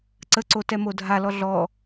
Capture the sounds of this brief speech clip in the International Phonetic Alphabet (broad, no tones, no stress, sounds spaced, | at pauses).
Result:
ǀ ə ǀ o t ɛ m o dʱ a l ɔ ɮ ɔ